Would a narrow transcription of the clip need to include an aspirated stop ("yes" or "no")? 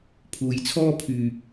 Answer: yes